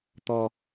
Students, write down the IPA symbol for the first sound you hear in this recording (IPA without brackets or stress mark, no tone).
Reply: t̪